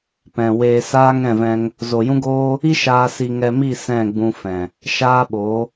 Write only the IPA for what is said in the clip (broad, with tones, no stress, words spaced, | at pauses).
pɛ̃˨ weː˧saː˦ ŋɛ̃˦˨vɛ̃˧ŋ | zo˨jũ˦ɡoː˦ | i˦ ʃaː˧si˧ŋɛ˧mi˦˨ sɛ̃˦˨ɡ͡bũ˧ fɛ̃˨ | ʃaː˦ɓo˨˦